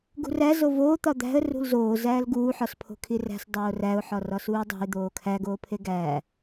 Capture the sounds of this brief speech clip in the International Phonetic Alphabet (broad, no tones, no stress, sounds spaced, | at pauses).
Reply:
ɡ ṳ r æ z o v oː t̪ ɒ d̪ æ̤ ə̯ r ṳ l z oː z æː l ɡ uː ħ ɒ s pʰ o̤ kʰ i r æ̤ s dˤ oː r æ ʊ̯ ħ ɒ r ɒ s uː dˤ o̤ ɪ̯ d̪ oː kʰ æ ɡ oː pʰ e ɡ æː